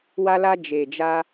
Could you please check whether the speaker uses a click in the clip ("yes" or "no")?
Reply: no